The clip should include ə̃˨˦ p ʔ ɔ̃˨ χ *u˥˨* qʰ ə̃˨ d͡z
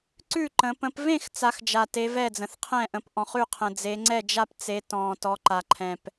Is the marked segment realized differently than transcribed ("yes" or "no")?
yes